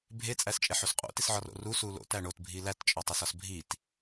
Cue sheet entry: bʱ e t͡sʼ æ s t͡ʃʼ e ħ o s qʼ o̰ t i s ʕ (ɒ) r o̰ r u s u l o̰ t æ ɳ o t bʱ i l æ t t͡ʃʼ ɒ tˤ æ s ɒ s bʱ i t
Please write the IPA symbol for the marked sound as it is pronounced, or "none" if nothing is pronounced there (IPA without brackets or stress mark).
ɒ